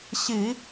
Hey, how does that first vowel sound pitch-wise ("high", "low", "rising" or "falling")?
low